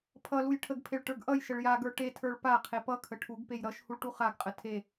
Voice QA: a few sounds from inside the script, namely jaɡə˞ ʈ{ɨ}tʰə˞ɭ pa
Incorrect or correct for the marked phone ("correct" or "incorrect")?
incorrect